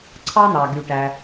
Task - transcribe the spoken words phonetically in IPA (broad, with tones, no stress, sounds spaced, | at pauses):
ǀʰ ɑ˧ n̪ ɑ˩ ɡ y˩ ʈ æ˩